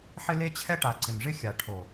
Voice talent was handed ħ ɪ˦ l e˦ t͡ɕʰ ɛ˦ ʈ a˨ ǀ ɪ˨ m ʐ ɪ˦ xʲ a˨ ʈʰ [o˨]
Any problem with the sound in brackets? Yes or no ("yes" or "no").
no